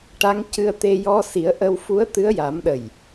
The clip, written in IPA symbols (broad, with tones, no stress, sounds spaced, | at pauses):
ʈ a˧˥ ŋ c ɨ˧ ə̯ t̪ e˧ j ɔ˧ s i˨˩˦ ə̯ ʔ ə˧ w f u˧˥ ə̯ t̪ ɨ˧˥ ə̯ j a˨˩˦ m ɗ ə˨˩ j